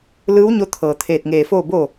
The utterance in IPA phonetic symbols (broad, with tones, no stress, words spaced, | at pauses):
lɯː˧˥wɲo˧t̪ʰɤː˩ t̪ʰeː˧˩t̚ŋeː˧˩foː˥˨ bo˥˨